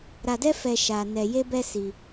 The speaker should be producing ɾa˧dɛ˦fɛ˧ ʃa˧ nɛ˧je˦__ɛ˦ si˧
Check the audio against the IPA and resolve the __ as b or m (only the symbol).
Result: b